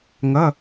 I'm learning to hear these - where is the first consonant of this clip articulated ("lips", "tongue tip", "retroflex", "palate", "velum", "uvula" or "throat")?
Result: velum